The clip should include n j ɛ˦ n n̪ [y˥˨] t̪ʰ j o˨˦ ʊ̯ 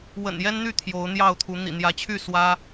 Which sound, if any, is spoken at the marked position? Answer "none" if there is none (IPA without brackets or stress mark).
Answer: y˥˨